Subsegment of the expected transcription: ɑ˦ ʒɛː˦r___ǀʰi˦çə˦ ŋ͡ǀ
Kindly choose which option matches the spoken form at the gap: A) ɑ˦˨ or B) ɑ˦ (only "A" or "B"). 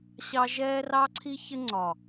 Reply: B